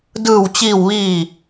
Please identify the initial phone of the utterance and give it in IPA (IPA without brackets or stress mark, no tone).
d